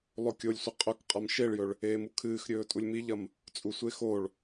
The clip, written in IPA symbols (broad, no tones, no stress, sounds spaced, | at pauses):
lˠ o kʲ o lʲ sʷ i qʼ ɵ k qʼ a m ʃ e ɭ j ɵ ɭ | eː m u kʰ ɨː x ɾʲ ɵː tʼ u lʲ m i ʎ ɐ m | t͡sʼ u sʷ e x o ɭ